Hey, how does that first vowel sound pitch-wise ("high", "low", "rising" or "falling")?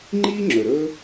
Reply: high